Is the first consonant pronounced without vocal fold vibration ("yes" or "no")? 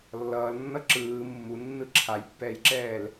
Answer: no